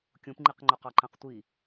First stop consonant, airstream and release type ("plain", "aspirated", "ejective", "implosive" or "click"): plain